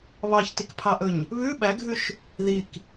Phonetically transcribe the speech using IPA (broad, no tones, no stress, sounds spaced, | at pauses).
β ɑ ç t i k pʰ ɑ ʔ ɵ ɲ | β ʉ ɓ æ ɡʱ ʉ ʃ | ð i k